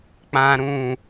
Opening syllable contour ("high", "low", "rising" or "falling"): low